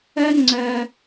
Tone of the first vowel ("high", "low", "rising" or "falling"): high